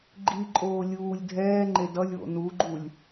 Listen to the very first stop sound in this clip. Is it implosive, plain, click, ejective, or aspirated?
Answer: click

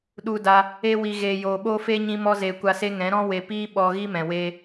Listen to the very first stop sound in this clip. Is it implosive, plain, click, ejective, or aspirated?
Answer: implosive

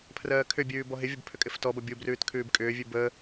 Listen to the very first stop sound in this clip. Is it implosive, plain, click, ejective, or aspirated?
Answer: aspirated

